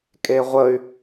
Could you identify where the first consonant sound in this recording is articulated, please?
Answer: velar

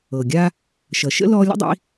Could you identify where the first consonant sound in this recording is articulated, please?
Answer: velar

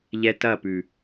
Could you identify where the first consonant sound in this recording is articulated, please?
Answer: palatal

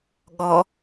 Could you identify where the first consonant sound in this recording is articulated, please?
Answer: velar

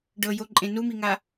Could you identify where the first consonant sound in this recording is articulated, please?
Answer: retroflex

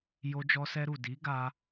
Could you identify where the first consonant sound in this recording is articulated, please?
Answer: palatal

